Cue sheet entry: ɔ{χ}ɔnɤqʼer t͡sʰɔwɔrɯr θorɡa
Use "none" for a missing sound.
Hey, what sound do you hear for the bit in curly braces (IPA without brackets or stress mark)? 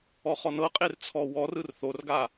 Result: χ